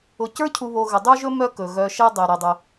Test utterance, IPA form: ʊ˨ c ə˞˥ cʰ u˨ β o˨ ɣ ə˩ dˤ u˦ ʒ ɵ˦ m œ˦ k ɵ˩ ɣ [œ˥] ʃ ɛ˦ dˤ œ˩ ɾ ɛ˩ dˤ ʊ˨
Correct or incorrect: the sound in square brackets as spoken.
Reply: incorrect: œ˨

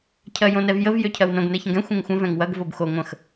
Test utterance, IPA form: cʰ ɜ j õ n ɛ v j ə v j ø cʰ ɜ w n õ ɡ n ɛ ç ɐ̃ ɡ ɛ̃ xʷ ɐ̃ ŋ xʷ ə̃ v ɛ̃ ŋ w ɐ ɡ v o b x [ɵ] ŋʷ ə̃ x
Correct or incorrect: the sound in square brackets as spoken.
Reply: incorrect: o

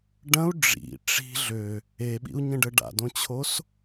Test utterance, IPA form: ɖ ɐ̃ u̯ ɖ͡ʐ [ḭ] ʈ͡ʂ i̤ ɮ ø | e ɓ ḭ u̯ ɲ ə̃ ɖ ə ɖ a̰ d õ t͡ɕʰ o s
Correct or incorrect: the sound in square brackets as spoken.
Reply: correct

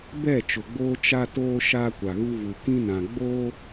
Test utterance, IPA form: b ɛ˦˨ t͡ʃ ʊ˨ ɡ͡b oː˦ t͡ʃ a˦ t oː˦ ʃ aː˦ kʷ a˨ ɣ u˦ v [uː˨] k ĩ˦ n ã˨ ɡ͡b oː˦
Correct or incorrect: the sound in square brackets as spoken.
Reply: incorrect: u˨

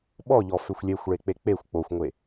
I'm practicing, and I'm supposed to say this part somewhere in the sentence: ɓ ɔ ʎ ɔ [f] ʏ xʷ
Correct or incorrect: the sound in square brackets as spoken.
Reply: correct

